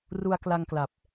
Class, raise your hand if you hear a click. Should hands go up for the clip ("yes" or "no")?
no